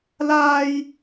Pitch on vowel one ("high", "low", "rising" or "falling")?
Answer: high